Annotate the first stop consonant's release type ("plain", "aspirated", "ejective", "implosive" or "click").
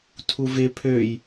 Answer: aspirated